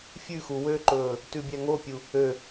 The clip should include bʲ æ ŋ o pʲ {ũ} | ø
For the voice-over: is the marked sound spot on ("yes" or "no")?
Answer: no